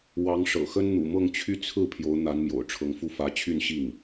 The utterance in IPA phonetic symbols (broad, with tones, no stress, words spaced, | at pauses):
wɑ˧˥ŋʂɤ̰˨˩xə˥n n̪ṵ˨˩ mɤ˥˧ŋt͡ɕʰy˥˧ t͡sʰɹ̩˥˩ pʰjo˧˥ʊ̯n̪a˧˥nmjo̰˨˩ʊ̯ ʈ͡ʂʰɤ˧˥ŋfu˥˩fä˧˥ t͡ɕʰy˥˧nɕi˥˩ŋ